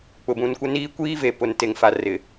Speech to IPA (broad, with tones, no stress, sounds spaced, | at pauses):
k͡p ʊ˨ b ũ˨ n kʷ ɪ˦ n iː˦ kʷ iː˦ v e˨ p ʊ˨ n t e˨ ŋ f a˨ r ɪ˨